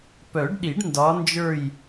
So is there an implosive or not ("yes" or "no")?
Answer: yes